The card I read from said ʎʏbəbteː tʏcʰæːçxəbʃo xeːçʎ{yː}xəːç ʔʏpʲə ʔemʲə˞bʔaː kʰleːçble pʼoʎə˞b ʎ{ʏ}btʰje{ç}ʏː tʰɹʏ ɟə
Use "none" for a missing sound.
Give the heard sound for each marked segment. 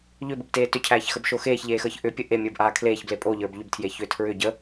eː, ʏ, ç

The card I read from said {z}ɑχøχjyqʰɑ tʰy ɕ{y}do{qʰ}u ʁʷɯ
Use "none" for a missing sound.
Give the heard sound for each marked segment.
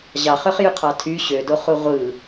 ʑ, ø, χ

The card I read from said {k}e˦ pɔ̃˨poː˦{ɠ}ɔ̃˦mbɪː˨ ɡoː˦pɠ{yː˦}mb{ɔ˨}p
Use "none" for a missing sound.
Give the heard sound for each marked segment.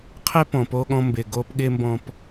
qʰ, ɠ, ɪː˦, ɔ̃˨

